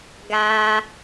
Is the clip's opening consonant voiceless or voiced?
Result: voiced